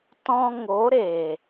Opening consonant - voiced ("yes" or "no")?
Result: no